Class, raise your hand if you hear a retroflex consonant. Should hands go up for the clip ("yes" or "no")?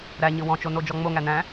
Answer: no